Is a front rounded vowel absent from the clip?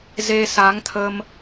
yes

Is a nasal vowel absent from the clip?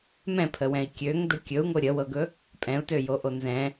no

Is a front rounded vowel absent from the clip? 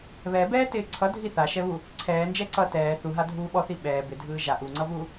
yes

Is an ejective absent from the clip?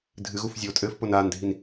no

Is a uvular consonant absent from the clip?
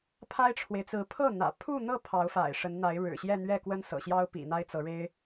yes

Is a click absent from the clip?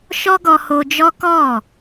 yes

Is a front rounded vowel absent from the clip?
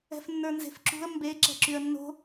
no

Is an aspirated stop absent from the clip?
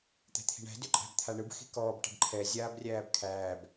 no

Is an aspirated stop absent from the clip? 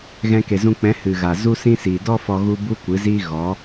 yes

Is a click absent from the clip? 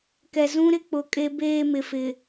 yes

